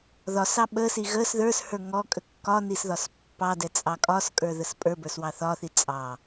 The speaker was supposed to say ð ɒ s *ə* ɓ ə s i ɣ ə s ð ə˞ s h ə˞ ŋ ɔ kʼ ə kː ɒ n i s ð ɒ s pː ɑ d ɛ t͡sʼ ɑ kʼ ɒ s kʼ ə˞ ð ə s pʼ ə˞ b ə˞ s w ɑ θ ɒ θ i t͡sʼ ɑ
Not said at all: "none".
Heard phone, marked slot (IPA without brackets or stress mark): ɑ